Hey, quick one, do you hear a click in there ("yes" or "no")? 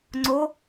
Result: yes